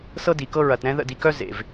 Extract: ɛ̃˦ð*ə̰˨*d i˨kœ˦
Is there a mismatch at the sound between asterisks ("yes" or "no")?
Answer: yes